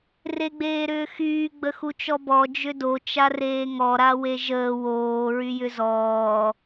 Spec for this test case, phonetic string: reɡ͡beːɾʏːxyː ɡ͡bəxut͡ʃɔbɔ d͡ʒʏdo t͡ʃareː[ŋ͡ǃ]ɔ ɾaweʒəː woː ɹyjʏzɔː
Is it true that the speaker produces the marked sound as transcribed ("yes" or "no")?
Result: no